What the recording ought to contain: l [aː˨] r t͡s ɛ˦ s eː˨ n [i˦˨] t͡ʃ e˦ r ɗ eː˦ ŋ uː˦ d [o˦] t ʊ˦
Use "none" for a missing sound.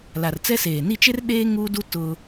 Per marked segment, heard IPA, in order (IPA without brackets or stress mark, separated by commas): a˨, i˦˨, u˦